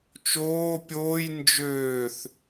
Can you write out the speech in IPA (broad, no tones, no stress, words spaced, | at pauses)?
t͡ʃoː pʲoːj nd͡ʒøːθ